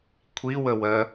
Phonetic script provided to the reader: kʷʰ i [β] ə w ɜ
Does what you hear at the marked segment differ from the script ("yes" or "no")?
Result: yes